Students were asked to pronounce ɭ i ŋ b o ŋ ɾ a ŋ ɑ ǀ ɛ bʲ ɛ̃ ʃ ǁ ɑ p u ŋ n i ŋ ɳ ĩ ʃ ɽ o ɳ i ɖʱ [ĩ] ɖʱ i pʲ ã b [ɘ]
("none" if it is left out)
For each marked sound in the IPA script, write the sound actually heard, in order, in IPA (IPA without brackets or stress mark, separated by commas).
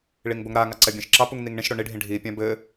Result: ĩ, ɘ